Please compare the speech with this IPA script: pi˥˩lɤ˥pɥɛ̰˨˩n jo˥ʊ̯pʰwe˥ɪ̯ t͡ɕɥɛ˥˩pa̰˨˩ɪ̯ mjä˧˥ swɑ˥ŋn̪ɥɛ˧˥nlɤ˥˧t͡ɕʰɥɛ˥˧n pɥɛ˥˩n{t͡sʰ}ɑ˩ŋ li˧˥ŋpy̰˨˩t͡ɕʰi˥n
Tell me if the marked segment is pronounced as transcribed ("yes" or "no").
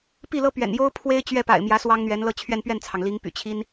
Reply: yes